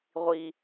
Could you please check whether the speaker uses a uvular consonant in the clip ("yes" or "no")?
yes